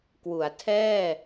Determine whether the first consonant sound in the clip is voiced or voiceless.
voiceless